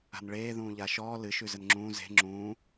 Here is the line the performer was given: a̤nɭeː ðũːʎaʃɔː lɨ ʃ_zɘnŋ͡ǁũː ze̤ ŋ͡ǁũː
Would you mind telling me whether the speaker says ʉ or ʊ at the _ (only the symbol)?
ʉ